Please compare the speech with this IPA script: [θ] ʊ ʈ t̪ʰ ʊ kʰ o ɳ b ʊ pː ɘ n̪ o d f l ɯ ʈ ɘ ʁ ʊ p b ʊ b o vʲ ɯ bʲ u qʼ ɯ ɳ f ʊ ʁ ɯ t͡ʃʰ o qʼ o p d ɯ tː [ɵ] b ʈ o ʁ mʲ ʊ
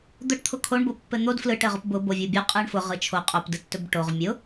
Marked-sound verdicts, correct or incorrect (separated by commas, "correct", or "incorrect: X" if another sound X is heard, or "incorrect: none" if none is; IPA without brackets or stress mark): incorrect: d̪, correct